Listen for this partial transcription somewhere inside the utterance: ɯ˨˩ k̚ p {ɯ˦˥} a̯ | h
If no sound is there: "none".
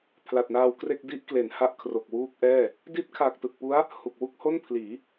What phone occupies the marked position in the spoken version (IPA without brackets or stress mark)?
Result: u˦˥